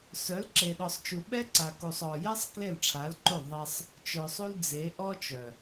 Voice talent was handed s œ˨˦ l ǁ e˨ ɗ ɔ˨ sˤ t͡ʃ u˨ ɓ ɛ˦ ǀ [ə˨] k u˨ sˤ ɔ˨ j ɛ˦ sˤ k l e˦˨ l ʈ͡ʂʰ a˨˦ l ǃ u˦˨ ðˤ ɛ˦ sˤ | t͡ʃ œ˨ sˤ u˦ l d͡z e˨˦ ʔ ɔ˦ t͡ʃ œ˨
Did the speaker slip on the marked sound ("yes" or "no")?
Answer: yes